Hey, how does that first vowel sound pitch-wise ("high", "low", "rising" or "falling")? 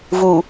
low